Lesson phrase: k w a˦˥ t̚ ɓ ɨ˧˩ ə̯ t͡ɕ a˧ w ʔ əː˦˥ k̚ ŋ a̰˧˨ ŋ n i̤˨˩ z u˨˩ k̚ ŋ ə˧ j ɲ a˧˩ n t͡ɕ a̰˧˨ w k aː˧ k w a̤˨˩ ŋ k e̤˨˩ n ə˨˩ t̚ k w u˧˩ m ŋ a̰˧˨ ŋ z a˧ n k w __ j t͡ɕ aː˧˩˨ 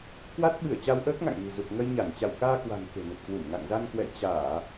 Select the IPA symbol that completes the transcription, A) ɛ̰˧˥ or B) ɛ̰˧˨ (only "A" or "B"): B